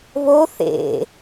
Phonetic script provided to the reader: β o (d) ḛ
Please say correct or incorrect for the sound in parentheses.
incorrect